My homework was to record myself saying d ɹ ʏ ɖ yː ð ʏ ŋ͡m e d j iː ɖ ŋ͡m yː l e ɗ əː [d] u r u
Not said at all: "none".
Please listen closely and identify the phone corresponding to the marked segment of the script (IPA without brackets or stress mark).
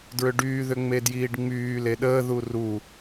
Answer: ð